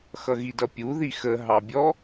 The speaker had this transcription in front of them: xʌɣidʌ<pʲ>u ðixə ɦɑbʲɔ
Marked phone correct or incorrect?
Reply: correct